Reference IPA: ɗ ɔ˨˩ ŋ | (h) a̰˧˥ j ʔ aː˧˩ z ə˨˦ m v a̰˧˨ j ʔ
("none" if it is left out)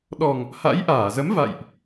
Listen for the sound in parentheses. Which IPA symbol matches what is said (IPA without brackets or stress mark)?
h